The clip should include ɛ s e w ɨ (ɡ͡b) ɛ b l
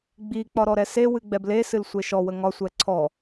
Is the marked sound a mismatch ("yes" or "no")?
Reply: no